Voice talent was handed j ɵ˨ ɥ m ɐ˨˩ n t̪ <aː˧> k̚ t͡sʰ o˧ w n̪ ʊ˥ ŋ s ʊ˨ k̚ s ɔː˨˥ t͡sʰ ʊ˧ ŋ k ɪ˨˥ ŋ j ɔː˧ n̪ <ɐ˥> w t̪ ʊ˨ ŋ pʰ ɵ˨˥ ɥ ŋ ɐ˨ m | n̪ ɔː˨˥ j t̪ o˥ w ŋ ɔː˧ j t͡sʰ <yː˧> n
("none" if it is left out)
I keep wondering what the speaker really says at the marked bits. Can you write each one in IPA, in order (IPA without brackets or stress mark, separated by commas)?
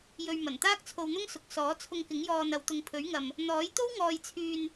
aː˥, ɐ˨˧, yː˧